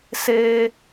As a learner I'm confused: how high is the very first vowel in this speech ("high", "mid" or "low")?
mid